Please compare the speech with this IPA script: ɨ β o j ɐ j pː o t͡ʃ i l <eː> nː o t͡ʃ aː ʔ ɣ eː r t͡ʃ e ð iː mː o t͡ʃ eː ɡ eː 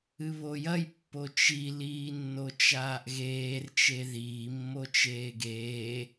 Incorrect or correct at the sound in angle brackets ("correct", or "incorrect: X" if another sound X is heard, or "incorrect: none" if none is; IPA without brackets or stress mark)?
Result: incorrect: iː